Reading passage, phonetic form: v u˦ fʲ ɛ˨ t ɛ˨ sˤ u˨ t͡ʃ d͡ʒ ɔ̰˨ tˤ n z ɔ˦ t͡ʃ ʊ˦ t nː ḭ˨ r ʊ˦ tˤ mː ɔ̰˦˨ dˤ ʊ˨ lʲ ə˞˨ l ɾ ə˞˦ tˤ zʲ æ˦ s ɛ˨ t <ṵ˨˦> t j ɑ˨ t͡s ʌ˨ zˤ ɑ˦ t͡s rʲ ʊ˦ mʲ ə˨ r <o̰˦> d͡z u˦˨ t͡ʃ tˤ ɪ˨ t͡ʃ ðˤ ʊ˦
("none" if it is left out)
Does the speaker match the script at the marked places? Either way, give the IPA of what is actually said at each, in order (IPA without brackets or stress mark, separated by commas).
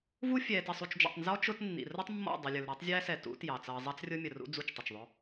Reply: ṵ˨˦, ṵ˦